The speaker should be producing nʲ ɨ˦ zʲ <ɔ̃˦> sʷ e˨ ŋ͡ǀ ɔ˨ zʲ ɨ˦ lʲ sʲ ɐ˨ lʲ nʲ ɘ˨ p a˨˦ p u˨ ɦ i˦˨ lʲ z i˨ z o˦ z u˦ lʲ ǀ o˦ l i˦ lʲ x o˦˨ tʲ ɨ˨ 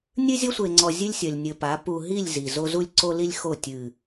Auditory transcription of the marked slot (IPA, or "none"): ɔ˦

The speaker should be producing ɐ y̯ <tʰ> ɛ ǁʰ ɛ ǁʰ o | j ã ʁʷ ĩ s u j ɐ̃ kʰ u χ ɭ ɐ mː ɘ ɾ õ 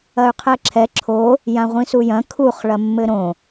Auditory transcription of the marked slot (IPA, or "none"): qʰ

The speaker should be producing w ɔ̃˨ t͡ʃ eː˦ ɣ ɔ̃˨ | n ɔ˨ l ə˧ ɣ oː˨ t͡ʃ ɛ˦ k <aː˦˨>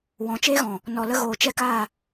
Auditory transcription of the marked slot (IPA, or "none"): aː˦˨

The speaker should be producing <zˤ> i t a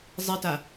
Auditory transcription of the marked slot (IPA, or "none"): zˤ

